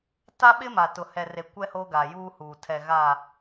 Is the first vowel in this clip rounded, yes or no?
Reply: no